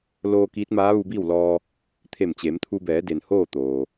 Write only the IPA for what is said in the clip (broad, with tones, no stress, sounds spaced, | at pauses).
l oː˧ k iː˧˥ t̚ m aː˧˥ ʋ u˧ b iː˥˨ w l ɔː˧ | t̪ʰ e˧˩ m t͡ɕ e˩˧ m t̪ʰ u˧ b ɛː˩˧ d e˩ n h oː˥˨ t̪ oː˩